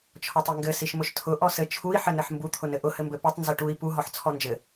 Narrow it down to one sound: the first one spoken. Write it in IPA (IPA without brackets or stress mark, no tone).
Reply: t͡ʃʰ